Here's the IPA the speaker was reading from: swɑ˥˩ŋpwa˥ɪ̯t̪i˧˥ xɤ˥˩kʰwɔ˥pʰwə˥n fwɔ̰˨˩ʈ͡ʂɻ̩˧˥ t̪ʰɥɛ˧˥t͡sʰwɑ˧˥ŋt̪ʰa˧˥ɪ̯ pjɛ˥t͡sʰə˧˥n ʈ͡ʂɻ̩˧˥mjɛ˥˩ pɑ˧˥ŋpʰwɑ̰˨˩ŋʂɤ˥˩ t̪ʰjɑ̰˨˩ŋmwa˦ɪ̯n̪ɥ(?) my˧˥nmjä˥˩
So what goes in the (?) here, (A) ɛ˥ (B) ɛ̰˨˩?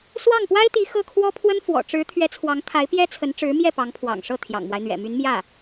B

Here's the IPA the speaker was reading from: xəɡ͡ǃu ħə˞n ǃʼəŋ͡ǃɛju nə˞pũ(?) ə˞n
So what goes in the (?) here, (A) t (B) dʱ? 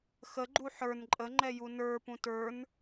A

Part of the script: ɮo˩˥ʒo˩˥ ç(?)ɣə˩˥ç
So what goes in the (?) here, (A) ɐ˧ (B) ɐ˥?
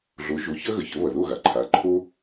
B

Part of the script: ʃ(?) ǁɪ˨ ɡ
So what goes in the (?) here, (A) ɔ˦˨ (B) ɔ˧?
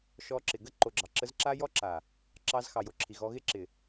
B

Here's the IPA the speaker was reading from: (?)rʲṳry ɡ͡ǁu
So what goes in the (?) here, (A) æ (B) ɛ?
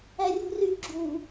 A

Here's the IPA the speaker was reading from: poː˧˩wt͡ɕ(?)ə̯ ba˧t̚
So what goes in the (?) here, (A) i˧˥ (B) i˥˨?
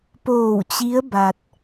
A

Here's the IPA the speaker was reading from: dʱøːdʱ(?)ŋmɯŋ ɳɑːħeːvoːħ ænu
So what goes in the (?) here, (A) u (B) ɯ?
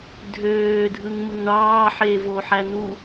B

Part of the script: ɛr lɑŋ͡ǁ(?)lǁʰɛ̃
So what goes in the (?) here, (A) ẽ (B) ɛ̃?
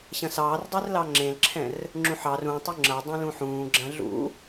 A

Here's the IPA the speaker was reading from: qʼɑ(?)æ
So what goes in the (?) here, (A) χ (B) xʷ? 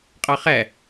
A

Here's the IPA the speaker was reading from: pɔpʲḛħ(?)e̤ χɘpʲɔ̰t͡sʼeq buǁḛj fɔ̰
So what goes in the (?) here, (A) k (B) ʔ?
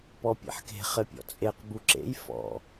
A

